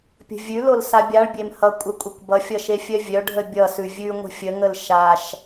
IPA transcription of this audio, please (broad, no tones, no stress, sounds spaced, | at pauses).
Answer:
pʲ ə̤ vʲ ʉ l o l s a bʲ a ɭ bʲ e m h ʌ kʷʼ ə kʷʼ ə kʷ b ʌ fʲ ʌ ʃ e fʲ œ vʲ œ ɖʱ ə bʲ ʌ s ʉ vʲ ʉ ŋʷ ə̤ fʲ ə ŋ ə l ʃ a ʃ